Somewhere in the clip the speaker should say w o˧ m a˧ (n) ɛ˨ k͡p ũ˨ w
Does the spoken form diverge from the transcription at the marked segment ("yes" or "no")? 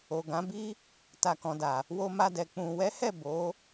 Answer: yes